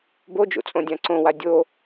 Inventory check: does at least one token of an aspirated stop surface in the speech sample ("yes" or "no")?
no